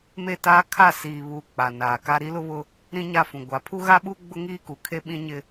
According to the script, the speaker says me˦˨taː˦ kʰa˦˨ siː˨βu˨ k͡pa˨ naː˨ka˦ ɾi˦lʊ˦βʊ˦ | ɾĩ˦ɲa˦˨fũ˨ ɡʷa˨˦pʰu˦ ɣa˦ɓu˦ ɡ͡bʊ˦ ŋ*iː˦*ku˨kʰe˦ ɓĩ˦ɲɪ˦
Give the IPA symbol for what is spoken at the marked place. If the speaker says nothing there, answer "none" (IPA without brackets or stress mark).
iː˦